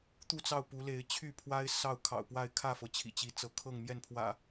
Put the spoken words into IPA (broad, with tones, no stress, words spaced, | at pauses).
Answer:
t̪u˥˨t͡sɑ˥˨ʊ̯pu˨˦le˨˦ɪ̯ t͡ɕʰy˥˨pʰwa˦ɪ̯ sɑ˥˨ʊ̯kʰɑ̰˨˩ʊ̯pwa˥˨ɪ̯ kʰä˥˨fɤ˩ t͡ɕʰḭ˨˩t͡ɕi˨˦t͡sɤ˨˦ kʰɤ˥˨ŋmjɛ˥˨npʰwä̰˨˩